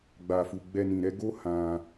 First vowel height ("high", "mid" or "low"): low